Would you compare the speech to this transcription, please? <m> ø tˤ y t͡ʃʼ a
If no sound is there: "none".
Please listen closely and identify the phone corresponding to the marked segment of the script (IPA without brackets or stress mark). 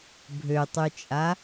bʱ